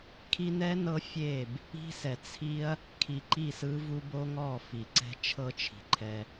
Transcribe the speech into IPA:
kʰ i˧ n ɛ˦ n ɤ˦ fʲ e˦˨ b | i̤˦ s ɛ˨ t͡sʰ i˦ ɐ̯ | kʰ i˨ ǃ i˦˨ s ɯ˦ v u˦ b o˦ ŋ ɔ˦˨ f i˨ ǀ ɛ̤˦ t͡ʃʰ ɤ˦ t͡ʃʰ i̤˨ ǃʰ ɛ˦

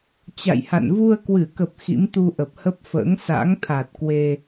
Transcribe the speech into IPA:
t͡ɕ a̰˧˨ j h a̰˧˨ n v u˧ ə̯ k w ɨ˧˩ k ə˨˩ p̚ x ḭ˧˥ m t̪ u˧ ʔ ə˨˩ p̚ h ə˦˥ p̚ f ə̰ː˧˥ ŋ s a̰˧˥ ŋ t̪ʰ a˨˩ t̚ k w e˧

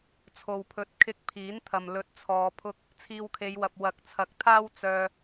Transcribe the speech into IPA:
t͡sʰ o˨ w pʰ ɵ˨˥ t̚ kʰ ɪ˧ k̚ pʰ iː˨˥ n t̪ʰ ɐ˨ m l ɵ˨˥ t̚ t͡sʰ ɔː˨ pʰ ʊ˧ k̚ | t͡sʰ iː˧ w kʰ e˨˧ j w ɐ˨ p̚ w ɐ˨˥ k̚ t͡sʰ ɐ˨˥ k̚ t̪ʰ aː˥ w t͡s œː˧

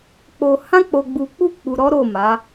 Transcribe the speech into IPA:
k͡p o˧ h ã˦ k͡p o˧ ɡ͡b u˧ k͡p u˦ k͡p u˧ ɾ ɔ˦ ɾ o˦˨ m a˨˦

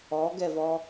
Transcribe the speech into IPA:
ɔ ɡ ɛ v ɔ

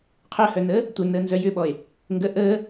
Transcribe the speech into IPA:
qʰ œ h œ n əː | tʷ œ n əː n z œ j ʏ ɓ ɔ e̯ | ŋ ɡ ə ʔ əː

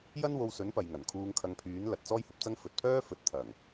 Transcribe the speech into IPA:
j ɐ˥ n w o˧ w s ɵ˨˥ n p ɐ˨ j ŋ ɐ˨˩ n kʰ uː˧ ŋ kʰ ɐ˧ ŋ pʰ yː˨˥ n l ɐ˨ t̚ t͡s ɔː˥ j h ɐ˧ p̚ t͡s ɐ˥ ŋ f ɵ˨ t̚ pʰ œː˥ f ɵ˨˥ t̚ t̪ʰ ɐ˨˩ ŋ

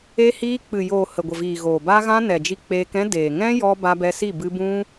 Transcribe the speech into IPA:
e˧ h iː˧ k͡p ɨ˨ j oː˨ h ə˨ ɡʷ ə˨ v iː˨ ɣ oː˨ b aː˦ ɣ ã˦ n ɛ˨ d͡ʒ i˧ k͡p eː˧ k ɛ̃˦ d eː˨ ŋ ɛ̃˦ j ɔ˧ b a˧ b ɛ˧ s i˦˨ b ɨ˧ b ũ˦

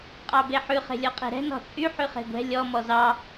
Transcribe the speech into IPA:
qʼ ɑ b e ħ ʉ χ e̤ lʲ ɔ qʼ ɛ̤ ɾ ɛ̤ n ɔ̤ t͡sʼ y ħ y χ e̤ ɡʷ ɛ̤ lʲ ɔ m ɔ z ɑ

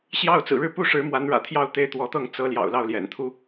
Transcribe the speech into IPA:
ɕ j ɑ˥˩ ʊ̯ t͡s ɹ̩˨˩ ɻ ɻ̩˥˧ p u˥˩ ʂ ɻ̩˧˥ m w a˧˥ n ɻ ä̰˨˩ t̪ʰ j ɑ˥˧ ʊ̯ t̪ e˥˩ ɪ̯ t̪ w ɔ˧˥ t̪ ɤ˥˩ ŋ t͡s ɤ˧˥ l j ɑ̰˨˩ ʊ̯ l ɑ˥˩ ʊ̯ l j ɛ̰˨˩ n t̪ʰ u˥

